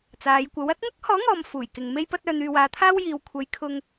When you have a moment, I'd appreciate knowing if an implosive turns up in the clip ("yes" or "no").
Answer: no